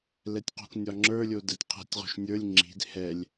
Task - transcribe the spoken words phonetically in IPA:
l ɛ tʲ q o̤ k nʲ ɒ ŋ͡ǁ ə˞ lʲ o d ɛ tʲ qʰ ɛ̤ tʲ ʁ o̤ ʃ nʲ ə˞ lʲ ŋ͡ǁ i̤ d h ɛ lʲ

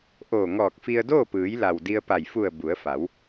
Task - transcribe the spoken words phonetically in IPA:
ʔ oː˧˩ ŋ ɔː˧˩ k̚ f i˧ ə̯ d oː˥˨ p ɯː˩˧ j l a˩ w d i˧ ə̯ p a˧˩ j f u˧˩ ə̯ b u˩˧ ə̯ f a˩˧ w

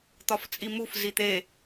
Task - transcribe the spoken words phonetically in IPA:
t̪ ɒ f t͡sʼ i m u f z i t̪ e

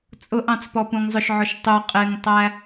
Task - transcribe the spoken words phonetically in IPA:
t͡sʼ ʊ ʔ ɑ̃ t͡s p ɔ p ũ ŋ zˤ ʊ ʃ ʕ ʊ ʃ tˤ ʊ qʼ ɪ ŋ tˤ æ

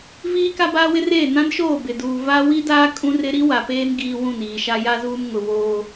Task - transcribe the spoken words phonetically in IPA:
v iː˦ k a˦ b aː˦ w ɪ˦ r eː˦˨ n ã˦ n ʃ oː˦˨ b ɪ˨ d uː˨ v a˦ w i˦ d aː˦ kʼ ũ˦ r ɪ˦ ɾ i˦ w a˨ p eː˦ n ɡ iː˦ w ũ˦˨ n iː˨ ʃ a˦ j a˦ z uː˦ m ŋ ʊ˨ β oː˦

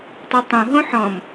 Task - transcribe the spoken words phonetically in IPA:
tˤ o tˤ õ ɦ õ ħ ɔ̃ m

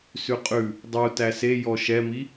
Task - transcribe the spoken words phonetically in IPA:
s ʉ qʼ ʉ | dˤ u t æ s e j ɔ ʃ ɛ m i

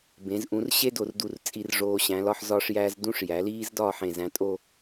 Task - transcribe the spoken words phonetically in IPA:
b ẽ˩˧ z ʔ ũ˩˧ r ɕ e˥ d o˧˩ r d u˧˩ r t͡sʼ i˧ r ʐ oː˧ ɕ æ̃˩˧ l ɒ˧ ħ z ɒː˧ ʂ j æː˧ z d ũ˥ ʂ j æ˩˧ l iː˥ z d ɒː˥˧ ħ ẽ˧˩ z æ̃˧ tʼ o˥˧

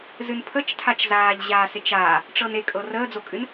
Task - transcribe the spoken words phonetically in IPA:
z ɨ n pʰ ə t͡ʃ tʰ a t͡ʃ z aː ʎ ʑ aː s e t͡ʃ aː | ʈ͡ʂ ɤ n e kʼ ɤ r əː d͡z o kʼ ɨ n

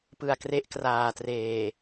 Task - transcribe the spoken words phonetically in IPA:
p ɯ˨˩ a̯ k r e˦˥ ʔ k r aː˨˩ t r eː˨˩

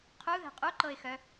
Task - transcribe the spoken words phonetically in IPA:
qʰ u ð ɛ̤ qʼ u ǃ ɤ ɪ̯ x œ

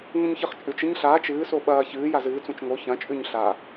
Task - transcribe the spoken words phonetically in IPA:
ŋ ũ ɲ ç ɨ χ t͡ʃʼ ʉ t͡ʃ ɨ ɲ ɬ aː t͡ʃ ɨː s o ɓ ɐː ç ɨː j a z ɨː t͡s ũ t͡ʃ ŋ o ç ɐ̃ t͡ʃʼ ʉ ɲ ɬ a

